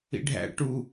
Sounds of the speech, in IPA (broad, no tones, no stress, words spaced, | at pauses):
ḭɖʱæ̰ ʈu